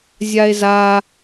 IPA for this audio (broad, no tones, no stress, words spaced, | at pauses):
zʲae̯za